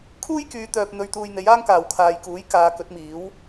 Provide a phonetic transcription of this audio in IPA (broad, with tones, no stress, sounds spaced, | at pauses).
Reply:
kʰ uː˥ j k yː˨˧ t̪ œː˨ p̚ n̪ ɵ˧ ɥ t̪ uː˧ j n̪ e˨˥ j aː˥ ŋ k aː˨ w kʰ aː˨ j k uː˨˥ j k aː˨˧ k ɵ˨˥ t̚ m iː˨˥ w